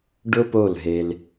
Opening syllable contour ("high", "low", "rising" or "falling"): high